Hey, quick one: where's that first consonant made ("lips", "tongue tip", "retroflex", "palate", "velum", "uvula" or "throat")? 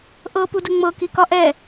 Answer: throat